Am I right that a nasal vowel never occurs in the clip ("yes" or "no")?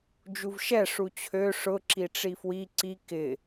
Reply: yes